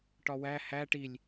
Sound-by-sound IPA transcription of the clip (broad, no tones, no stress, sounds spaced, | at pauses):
ʈ ɒ w æ h æ ʈ i lʲ